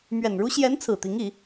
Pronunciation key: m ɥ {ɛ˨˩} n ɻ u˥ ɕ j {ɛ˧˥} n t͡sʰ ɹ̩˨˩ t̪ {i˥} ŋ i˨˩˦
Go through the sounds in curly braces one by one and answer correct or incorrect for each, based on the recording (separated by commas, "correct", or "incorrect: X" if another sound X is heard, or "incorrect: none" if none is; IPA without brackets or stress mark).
correct, correct, incorrect: i˧˥